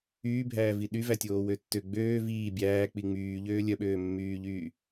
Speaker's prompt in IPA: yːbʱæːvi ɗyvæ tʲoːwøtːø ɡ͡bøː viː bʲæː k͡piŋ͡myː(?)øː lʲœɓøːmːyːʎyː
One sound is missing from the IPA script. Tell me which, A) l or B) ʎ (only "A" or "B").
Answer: B